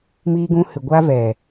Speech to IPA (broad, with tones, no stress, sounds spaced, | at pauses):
m iː˧ ɡ ũ˧ h ɨ˨ ɡʷ aː˧ v ɛ˨